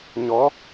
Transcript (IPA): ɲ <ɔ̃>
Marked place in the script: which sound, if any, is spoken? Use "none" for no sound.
ɔ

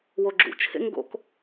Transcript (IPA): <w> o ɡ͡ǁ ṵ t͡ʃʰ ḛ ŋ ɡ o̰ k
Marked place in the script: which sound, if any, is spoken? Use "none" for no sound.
w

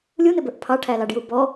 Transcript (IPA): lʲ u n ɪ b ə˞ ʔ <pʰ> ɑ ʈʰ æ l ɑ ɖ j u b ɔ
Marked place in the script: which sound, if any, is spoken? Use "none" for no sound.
pʰ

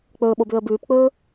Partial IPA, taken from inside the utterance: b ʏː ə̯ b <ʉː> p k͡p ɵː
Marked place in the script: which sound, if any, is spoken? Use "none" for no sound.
ʉː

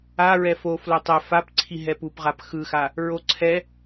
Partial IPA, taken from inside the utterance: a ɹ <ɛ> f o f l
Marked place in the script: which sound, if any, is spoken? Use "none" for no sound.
ɛ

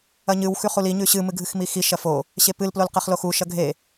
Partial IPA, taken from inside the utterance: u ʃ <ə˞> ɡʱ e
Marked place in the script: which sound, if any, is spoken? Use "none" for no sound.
ɐ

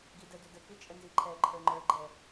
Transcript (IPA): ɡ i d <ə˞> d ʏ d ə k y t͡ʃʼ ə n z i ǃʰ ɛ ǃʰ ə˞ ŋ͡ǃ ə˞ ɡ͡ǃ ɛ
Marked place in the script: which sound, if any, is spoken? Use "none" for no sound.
ə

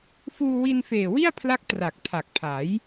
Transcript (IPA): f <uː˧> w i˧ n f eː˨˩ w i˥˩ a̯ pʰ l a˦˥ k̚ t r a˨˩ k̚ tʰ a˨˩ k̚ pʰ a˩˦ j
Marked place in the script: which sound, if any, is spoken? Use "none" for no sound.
uː˧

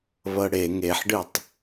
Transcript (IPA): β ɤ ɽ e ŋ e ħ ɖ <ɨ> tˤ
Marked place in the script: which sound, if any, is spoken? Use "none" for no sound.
ɨ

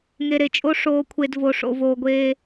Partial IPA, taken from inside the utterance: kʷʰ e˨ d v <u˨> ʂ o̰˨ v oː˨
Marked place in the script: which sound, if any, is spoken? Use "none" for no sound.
o˨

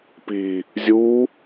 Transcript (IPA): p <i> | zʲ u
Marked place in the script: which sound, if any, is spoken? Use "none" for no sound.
i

